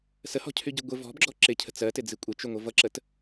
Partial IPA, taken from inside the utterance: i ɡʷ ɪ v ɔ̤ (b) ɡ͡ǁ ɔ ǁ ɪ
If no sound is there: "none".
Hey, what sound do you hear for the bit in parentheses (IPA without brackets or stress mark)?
b